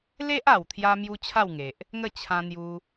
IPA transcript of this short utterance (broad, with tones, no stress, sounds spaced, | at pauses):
l e˦ ʔ a˨˩ w t̪ʰ j a˧ m j u˦ t͡ɕʰ a˥˧ w ŋ e˨ ʔ | ŋ ə˥˧ t͡ɕʰ ã˧ n̪ j u˧